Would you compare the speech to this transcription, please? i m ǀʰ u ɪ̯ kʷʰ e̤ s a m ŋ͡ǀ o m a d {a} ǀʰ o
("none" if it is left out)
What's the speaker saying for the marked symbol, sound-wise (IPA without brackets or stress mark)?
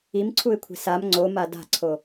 a̤